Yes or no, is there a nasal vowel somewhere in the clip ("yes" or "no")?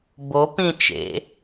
yes